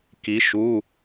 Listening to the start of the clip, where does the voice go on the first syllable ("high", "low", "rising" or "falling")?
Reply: rising